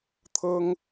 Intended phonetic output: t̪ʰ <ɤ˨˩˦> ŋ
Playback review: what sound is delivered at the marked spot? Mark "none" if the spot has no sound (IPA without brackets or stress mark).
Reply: ɤ˥